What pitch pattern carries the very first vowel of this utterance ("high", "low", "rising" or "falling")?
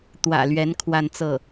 low